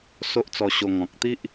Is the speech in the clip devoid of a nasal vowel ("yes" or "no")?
no